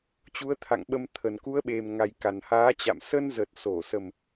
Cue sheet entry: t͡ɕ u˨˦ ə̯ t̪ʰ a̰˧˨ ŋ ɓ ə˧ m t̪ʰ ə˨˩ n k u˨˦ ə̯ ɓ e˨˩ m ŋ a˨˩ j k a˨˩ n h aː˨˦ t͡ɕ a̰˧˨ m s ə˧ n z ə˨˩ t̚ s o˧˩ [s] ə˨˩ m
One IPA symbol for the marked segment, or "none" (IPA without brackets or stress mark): s